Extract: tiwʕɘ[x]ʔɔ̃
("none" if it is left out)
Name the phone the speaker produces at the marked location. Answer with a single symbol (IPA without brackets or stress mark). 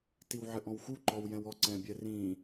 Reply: none